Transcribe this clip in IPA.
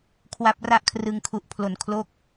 kʰ w a˦˥ p̚ r a˥˩ ʔ kʰ r ɯ˧ ŋ kʰ u˨˩ ʔ pʰ l o˩˦ n kʰ l oː˦˥ k̚

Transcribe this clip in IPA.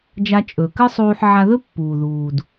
d͡ʒ a˧ t͡ʃʼ ɵ˩ k ɨ˥ sˤ uː˧ ħ ʕ a˧ ð ɵ˥ pː uː˩ ð uː˩ d

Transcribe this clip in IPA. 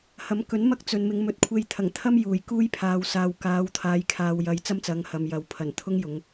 h ɐ˨˥ m k ɵ˨˥ n m ɐ˥ k̚ t͡s ɵ˨ n m ɪ˨˧ ŋ m ɵ˨˥ t̚ kʷʰ e˧ j t̪ʰ ɐ˨˩ ŋ t̪ʰ ɐ˥ m j uː˨˩ j k uː˥ j pʰ aː˨ w s aː˨ w k aː˨˧ w t̪ʰ aː˨˧ j kʰ aː˨ w j ɐ˨˧ j t͡s ɐ˥ m t͡s ɐ˨˧ ŋ h ɐ˨ m j ɐ˨ w pʰ ɐ˨˩ n t̪ʰ ʊ˥ ŋ j ʊ˨˧ ŋ

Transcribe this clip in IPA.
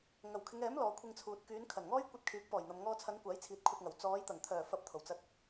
ŋ ɐ˨˩ w kʰ ɪ˨˧ ŋ ɛː˨˥ m l ɔː˨˧ kʷʰ ɪ˧ ŋ t͡sʰ uː˨ t̚ k yː˨˧ n kʰ ɐ˨˩ n ŋ ɔː˥ j kʷ ɐ˧ t̚ kʰ yː˨˥ k̚ p ɔː˨˩ j n̪ ɐ˨ m ŋ ɔː˧ t͡sʰ ɐ˨˧ n kʷ aː˨˥ j t͡sʰ iː˨ t̚ kʷʰ ɐ˧ t̚ ŋ ɐ˨˩ w t͡s ɔː˨˧ j t̪ ɐ˨˩ ŋ t̪ʰ œː˨˩ f ɐ˧ p̚ t̪ʰ o˨˩ w t͡s ɐ˧ t̚

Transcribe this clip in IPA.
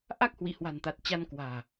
ʔ a˦˥ k̚ h w ḭ˧˨ h w a̤˨˩ n t̪ a˨˩ t̚ t͡ɕ a˧ n k w a̤ː˨˩

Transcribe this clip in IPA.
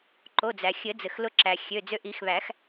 ǃ o˩˧˩ d͡z æ˩ xʲ ɘ˨˩˦ d͡z ɘ˩ x l ʊ˧ ǁ æ˩ xʲ ø˩˧˩ d͡z ø˧ ʔ i˨˩˦ x β æ˨˩˦ x

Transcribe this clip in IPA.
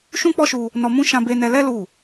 ʃ ũ˦ k͡p ɔ˦ ʃ u˧ | n ɔ˧ m ũ˦ ʃ ã˧ b e˧ n ɛ˧ l ɛ˦ l u˦˨

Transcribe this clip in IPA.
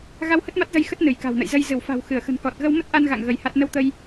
ɣ a˧ w h ə˦˥ t̚ m a˦˥ t̚ z ə˧ j x ə˦˥ t̚ n ɨ˧˩ j k a̤˨˩ w n ə̰˧˨ j z ə˧ j z ɨ˧˩ w f a̤˨˩ w x ɨ˧˩ ə̯ x ə̤˨˩ n k ɔ˨˩ t̚ ɣ ə˧ w m ə˦˥ t̚ ʔ a˧ n ɣ a̰˧˨ ŋ ɣ ə˧ j h a˦˥ t̚ n ə˧ w t̪ ə˧ j

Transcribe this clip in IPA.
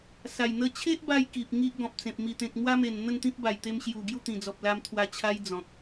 s a˨˩ j n̪ ə˦ t͡ɕʰ e˦ ʔ b a˧ j k i˨ p̚ ŋ i˦ ʔ ɡ ɔ̃˨ p̚ t͡s ẽ˨ p̚ m i˨˩ t̪ ẽ˨ k̚ m w a˦ m e˨˩ n n̪ ə˥˧ n t̪ ĩ˦ p̚ b a˨˩ j t̪ e˧ m ɕ j u˨˩ ɡ j u˥˧ t̪ ĩ˨˩ d͡z ɔ˨ p̚ l a˧ m t̪ʰ w a˧ t͡ɕʰ a˦ j d͡z ɔ̃˨ k̚

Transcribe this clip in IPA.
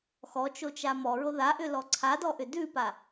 x ɔ t͡ʃ o t͡ʃ a m ɔ ɹ o ð a ʔ ʏ l ɔ ǀʰ a d ɔ ʔ ʏ d ʉ p a

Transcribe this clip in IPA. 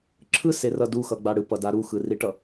ǁʰ ɯ s e r ʌ d u x ʌ ɡ͡b a ɽ ɯ p ʌ d a ɾ u x ɯ r i ʈ ʌ

